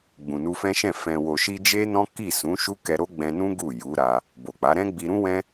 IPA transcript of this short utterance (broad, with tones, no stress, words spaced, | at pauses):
ɡ͡bũ˨nu˧fɛ̃˦ʃɛ̃˦˨ fɛ̃˨wo˨ʃi˧ d͡ʒe˦nɔ̃˦ki˦˨ sũ˨˦ʃu˦ kɛ˧ɾo˦ɡ͡bɛ̃˧nũ˦ ɡu˦˨ju˨˦ɾa˧ | bo˨k͡pa˨˦ ɾɛ̃˦ɡ͡bi˧ɾũ˦wɛ̃˦